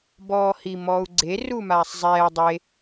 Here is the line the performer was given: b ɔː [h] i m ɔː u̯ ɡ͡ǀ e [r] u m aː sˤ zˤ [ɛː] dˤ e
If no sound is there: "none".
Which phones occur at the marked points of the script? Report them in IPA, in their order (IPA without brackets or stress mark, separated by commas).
h, r, ɛː